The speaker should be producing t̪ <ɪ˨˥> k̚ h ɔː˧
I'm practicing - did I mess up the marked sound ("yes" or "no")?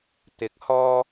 no